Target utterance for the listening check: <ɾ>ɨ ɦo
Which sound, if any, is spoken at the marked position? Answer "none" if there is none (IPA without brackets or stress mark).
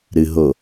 ɾ